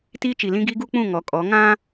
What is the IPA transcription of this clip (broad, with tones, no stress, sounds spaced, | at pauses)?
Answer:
t iː˦ t͡ʃ i˨ l ĩ˦ ɡ i˦ ɡ u˦ k͡p ũ˦˨ ŋ ɔ˨˦ kʼ ɔ˨˦ ŋ ã˦